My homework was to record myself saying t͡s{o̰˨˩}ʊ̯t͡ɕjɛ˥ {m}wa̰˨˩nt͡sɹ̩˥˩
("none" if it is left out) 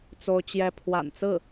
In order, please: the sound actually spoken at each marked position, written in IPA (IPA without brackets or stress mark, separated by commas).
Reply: o˥, pʰ